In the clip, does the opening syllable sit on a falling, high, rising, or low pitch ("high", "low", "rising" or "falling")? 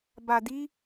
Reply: low